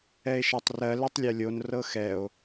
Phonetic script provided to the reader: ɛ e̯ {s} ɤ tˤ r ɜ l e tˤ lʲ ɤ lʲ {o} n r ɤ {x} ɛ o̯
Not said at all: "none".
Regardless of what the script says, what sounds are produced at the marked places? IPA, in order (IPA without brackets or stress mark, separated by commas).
ʃ, o, x